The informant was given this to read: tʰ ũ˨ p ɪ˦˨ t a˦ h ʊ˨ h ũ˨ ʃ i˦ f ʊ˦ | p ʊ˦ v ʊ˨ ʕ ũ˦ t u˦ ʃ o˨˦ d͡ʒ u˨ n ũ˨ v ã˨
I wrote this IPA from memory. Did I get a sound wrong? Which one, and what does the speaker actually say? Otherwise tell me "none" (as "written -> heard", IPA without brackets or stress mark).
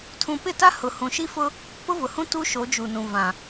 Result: ʕ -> h